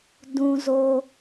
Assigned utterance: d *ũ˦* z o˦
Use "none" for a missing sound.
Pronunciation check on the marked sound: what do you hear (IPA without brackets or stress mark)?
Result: ũ˦